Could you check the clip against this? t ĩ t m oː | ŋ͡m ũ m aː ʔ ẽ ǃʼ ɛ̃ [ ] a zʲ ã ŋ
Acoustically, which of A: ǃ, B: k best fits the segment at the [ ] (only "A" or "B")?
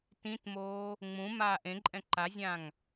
A